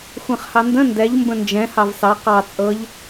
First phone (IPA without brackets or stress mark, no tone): xʷ